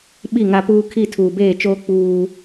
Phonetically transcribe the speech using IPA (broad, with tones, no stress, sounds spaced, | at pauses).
ɓ i˦˨ ŋ a˦ p uː˦ kʰ i˦˨ tʰ uː˨ b eː˦˨ t͡ʃ oː˦ k͡p uː˦